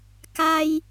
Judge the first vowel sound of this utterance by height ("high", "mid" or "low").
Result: low